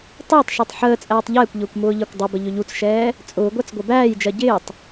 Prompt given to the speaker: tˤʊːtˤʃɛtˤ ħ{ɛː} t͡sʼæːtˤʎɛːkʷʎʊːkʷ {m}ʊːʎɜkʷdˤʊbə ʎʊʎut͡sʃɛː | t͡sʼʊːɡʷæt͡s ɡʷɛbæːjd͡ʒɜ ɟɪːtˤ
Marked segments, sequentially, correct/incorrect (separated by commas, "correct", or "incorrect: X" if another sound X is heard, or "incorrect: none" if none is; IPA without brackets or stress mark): incorrect: əː, correct